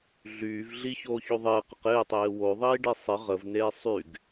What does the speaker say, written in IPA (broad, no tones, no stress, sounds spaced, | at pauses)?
ɮ yː v ɮ i ç oː ç o ðˤ ɪː q ə q ɪː tˤ eː w o ðˤ iː ɖ i sˤ ɪ ʁ ə v n eː sˤ y ɡ